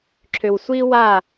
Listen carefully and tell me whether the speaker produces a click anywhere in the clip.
yes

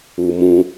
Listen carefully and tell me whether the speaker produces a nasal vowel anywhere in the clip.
yes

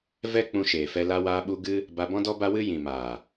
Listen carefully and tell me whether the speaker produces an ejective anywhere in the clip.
no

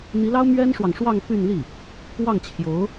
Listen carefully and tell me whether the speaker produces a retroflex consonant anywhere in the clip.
yes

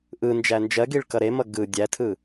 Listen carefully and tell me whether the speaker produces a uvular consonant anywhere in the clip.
no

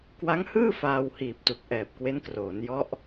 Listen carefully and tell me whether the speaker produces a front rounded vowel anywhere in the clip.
no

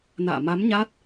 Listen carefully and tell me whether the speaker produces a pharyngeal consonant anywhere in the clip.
no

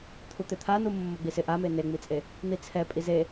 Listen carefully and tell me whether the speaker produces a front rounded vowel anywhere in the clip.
no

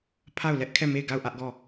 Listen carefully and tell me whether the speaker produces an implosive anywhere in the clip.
no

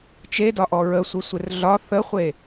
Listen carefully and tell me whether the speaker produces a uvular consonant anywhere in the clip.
yes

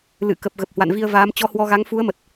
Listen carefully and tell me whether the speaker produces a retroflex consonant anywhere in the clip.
no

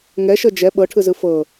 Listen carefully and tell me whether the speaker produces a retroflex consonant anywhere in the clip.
yes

